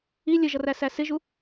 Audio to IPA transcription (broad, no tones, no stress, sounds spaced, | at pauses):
i lʲ ə ʒ ʌ r æ s æ s ɪ ʒ u